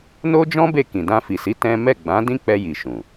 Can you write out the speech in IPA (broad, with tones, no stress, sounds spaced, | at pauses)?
n o˦ d͡ʒ ɔ̃˦ b e˦˨ k ĩ˨ d ã˧ f i˨ s i˨˦ t ɛ̃˦ m ɛ˦˨ ɡ͡b ã˨˦ d ĩ˦ k͡p ɛ˧ j i˨ ʃ ũ˨